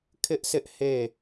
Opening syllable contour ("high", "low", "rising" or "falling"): high